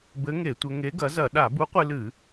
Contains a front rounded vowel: no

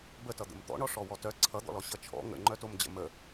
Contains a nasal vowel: no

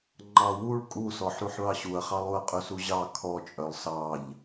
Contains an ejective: yes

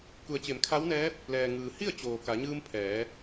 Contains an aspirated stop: yes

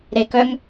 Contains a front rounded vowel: yes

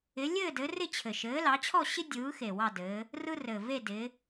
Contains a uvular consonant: no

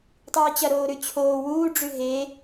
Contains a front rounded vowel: no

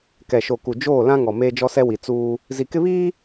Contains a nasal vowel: yes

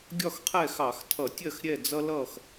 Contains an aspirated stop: yes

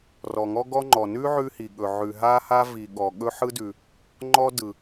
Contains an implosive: yes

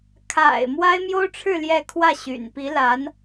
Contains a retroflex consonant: yes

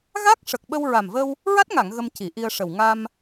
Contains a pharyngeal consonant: no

